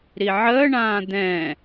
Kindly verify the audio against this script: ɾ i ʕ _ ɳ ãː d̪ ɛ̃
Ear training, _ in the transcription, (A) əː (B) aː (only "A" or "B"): A